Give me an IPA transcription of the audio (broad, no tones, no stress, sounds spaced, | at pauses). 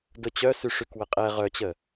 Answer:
d ʊ t͡ɕ œ s y ʂ y k w ə qʼ ɛ ʁ œ t͡ɕ ə